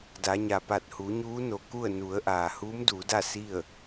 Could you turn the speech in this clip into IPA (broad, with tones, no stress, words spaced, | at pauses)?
da˩˧ɲa˩pa˧˩t̚ hu˩˧ɲuː˧˥no˩ ku˥˨ə̯nu˩˧ə̯ʔaː˩ huː˧˥mduː˩˧da˥˨ si˥˨ə̯